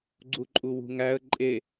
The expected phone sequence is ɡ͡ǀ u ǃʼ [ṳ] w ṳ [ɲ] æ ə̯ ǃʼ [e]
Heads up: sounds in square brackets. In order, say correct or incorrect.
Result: incorrect, incorrect, correct

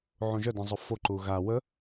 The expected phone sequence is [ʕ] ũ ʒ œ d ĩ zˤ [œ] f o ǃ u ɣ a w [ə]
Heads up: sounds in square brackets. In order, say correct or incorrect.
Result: correct, incorrect, correct

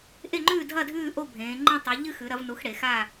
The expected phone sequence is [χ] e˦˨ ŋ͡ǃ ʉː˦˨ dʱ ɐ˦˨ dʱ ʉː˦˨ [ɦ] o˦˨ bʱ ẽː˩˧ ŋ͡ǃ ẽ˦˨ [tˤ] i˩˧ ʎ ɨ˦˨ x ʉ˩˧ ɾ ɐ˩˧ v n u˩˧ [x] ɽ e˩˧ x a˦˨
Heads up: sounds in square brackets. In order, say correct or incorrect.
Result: incorrect, incorrect, correct, correct

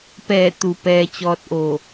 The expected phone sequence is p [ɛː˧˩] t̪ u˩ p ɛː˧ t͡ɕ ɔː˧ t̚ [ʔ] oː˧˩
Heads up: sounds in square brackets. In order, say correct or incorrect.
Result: correct, correct

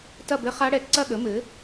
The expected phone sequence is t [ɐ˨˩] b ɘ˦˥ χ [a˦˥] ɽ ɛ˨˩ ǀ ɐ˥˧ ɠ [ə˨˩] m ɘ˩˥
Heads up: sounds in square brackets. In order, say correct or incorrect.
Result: incorrect, correct, incorrect

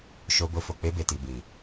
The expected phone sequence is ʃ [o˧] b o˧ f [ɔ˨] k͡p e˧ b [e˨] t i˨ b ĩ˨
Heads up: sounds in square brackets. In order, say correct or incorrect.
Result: correct, incorrect, correct

